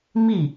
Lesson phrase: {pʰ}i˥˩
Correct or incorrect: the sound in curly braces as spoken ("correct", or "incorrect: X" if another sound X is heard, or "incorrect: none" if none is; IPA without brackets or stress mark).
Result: incorrect: m